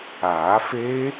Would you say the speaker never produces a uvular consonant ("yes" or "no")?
yes